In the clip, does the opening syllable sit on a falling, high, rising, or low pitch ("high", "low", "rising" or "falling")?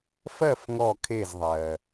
falling